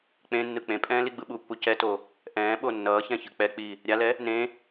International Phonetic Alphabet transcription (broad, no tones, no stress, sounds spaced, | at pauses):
k͡p ẽ nː ɯ k͡p ẽ pʼ ɛ̃ː l i ɡ͡b ɯ ɓ u pː u c ɛ t o | ʔ ɛ̃ː ɓ o nː ʌː ç ɛ̃ ç ɯ k͡p ɛ k͡p i | ɾʲ a l ɛ | n ẽ